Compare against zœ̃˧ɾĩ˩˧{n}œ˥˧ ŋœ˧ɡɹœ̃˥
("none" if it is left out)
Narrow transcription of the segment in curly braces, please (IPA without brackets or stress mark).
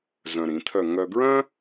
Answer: t̪ʰ